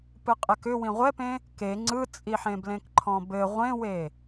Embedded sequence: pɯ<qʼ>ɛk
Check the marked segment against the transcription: correct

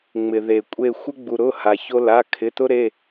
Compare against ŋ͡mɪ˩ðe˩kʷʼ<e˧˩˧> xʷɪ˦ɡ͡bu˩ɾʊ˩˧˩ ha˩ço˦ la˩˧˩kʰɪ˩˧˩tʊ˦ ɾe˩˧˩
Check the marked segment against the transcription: incorrect: e˦˨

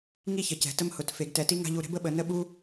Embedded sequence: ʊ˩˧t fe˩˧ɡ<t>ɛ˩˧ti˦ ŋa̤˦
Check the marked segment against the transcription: correct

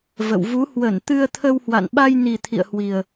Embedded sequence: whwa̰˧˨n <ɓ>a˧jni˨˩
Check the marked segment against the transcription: correct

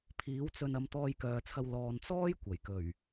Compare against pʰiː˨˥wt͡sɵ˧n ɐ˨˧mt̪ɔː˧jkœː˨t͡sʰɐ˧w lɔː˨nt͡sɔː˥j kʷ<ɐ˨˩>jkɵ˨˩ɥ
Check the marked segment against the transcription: correct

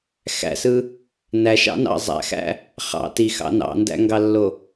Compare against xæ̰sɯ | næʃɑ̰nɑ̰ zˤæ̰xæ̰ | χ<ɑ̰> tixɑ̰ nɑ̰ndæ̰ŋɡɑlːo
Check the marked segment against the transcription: correct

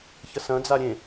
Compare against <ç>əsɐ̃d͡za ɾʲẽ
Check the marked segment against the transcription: correct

